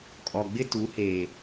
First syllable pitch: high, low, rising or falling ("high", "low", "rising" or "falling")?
low